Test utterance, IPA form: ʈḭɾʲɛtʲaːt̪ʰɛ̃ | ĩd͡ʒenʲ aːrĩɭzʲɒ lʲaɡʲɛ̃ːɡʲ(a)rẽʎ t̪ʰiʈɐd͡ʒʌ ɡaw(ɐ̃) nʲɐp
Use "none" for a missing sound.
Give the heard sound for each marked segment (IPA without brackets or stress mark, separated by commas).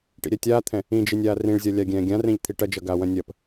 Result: ã, ɐ̃